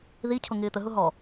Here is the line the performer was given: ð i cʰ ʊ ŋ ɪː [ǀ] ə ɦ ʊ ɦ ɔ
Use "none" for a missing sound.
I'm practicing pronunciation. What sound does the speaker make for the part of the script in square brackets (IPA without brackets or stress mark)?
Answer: t̪